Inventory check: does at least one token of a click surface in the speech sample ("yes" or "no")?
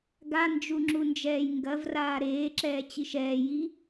yes